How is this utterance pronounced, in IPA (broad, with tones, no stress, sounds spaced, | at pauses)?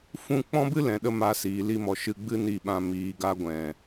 f ũ˦ k͡p ɔ̃˦ b ɨ˦ l ɛ̃˨ ɗ ə˧ m a˧ s iː˨ l i˧ m ɔ˨ ʃ ɨ˧ ɡ͡b ɨ˦ n i˧ ɓ ã˧ m iː˨ ɡ a˧ ɡʷ ɛ̃˨